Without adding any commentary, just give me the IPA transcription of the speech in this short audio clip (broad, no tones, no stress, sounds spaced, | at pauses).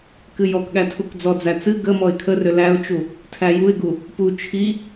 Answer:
k ɨ j ɔ k ɠ æ tʰ u k d͡z ɔ d͡z æ t͡s ɨ ɡ ə m ɔ ɪ̯ kʰ ə r ʏ l æ ʊ̯ t͡ʃ u | tʰ æ j u ɪ̯ ɡ u | p u t͡ʃʰ i